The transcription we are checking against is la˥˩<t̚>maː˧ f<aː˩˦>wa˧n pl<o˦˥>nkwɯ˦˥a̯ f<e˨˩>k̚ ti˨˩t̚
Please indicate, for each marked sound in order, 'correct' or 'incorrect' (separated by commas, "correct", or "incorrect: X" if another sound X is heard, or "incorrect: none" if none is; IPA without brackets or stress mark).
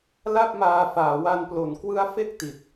incorrect: p̚, correct, incorrect: o˩˦, incorrect: e˥˩